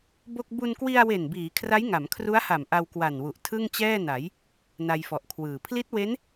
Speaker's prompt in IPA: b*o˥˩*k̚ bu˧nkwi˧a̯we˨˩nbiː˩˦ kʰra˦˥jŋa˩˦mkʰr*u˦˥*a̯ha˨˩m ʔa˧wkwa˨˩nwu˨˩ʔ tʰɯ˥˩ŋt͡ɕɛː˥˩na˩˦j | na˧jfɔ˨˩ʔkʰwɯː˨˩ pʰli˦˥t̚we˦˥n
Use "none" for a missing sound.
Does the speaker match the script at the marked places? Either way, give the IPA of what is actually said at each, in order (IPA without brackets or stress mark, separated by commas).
o˥˩, u˦˥